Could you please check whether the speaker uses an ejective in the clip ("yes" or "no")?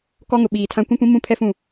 no